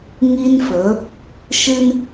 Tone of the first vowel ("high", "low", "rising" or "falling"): high